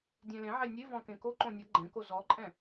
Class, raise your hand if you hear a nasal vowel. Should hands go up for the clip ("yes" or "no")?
yes